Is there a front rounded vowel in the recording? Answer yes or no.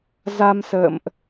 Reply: no